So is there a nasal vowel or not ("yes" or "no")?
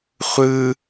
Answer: no